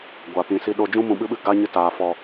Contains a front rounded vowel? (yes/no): no